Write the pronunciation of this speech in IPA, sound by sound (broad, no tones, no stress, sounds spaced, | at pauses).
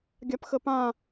ɡʲ a p x ə p ã